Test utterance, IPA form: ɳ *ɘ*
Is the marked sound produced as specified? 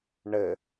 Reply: yes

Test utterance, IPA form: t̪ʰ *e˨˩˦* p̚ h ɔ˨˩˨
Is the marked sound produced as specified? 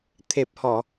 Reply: no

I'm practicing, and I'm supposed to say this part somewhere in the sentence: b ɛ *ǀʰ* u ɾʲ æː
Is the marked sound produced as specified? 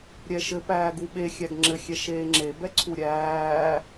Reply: yes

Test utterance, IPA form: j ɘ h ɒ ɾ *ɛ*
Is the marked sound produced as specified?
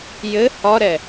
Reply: yes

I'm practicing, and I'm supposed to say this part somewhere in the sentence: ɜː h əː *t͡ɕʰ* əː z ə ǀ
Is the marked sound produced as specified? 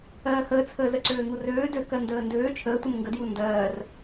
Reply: no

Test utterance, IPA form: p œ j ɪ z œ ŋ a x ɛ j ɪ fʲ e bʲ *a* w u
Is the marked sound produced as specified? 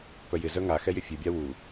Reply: yes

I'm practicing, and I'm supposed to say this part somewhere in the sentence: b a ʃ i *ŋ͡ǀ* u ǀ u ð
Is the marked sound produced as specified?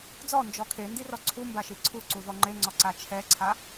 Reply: no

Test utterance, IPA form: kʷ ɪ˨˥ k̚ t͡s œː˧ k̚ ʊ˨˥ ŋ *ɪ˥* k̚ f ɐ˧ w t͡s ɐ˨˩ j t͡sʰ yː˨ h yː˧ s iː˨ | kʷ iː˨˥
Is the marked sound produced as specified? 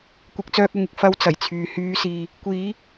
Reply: no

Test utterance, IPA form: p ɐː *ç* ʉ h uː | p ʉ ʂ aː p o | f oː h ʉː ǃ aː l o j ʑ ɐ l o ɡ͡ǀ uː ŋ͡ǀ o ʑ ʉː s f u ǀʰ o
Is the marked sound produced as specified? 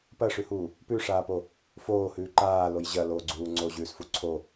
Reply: no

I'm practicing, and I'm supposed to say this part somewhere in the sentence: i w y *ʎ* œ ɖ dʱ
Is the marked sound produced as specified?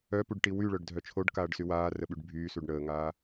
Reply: no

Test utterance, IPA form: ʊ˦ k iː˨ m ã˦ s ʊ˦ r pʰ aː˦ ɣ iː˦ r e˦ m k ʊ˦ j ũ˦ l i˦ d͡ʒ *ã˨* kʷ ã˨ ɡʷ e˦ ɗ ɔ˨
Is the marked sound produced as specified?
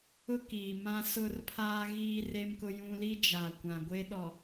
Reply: no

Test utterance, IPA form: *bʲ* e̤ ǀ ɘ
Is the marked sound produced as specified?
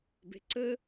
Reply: no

